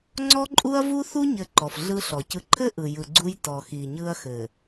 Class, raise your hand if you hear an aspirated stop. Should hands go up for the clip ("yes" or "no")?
yes